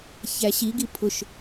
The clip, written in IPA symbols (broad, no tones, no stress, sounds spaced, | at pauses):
ç æ ɕ i ɡ i pʰ ʊ ʃ